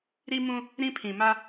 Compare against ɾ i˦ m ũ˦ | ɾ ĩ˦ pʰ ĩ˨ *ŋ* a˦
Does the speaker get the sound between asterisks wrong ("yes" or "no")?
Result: yes